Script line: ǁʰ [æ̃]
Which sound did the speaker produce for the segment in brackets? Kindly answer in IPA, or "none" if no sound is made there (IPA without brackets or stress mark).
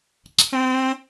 æ̃